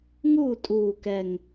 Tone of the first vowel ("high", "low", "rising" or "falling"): falling